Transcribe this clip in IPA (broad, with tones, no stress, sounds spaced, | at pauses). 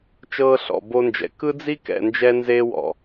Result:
t͡ʃ ɤː˦ ɬ ɔ̰˨ b o˦ n d͡ʒ ɛ̰˨ k ɯ˦ d͡z i˦ k ɛ̰˨ n d͡ʒ ɛ˦ n z eː˦ w ɔ̰˨